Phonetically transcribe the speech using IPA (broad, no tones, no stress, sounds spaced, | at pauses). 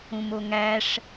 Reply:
ũ m o ŋ æ ʂ